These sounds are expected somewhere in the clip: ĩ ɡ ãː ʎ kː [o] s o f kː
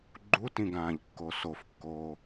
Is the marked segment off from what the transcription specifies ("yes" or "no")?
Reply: no